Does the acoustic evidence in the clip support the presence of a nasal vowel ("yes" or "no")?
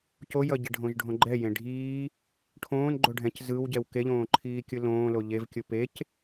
yes